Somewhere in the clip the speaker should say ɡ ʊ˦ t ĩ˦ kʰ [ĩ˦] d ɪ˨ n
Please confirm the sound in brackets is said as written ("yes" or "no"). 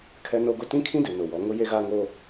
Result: yes